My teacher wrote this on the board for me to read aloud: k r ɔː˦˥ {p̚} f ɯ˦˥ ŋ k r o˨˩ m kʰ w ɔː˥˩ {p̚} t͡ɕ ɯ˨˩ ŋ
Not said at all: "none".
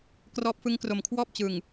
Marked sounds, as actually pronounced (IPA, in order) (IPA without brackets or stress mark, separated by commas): p̚, p̚